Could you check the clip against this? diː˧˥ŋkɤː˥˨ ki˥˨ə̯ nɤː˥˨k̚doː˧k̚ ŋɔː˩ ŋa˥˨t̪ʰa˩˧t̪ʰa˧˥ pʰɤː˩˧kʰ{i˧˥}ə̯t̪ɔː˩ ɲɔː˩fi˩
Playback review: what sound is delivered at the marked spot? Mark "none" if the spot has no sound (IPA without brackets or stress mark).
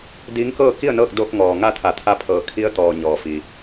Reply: i˧˥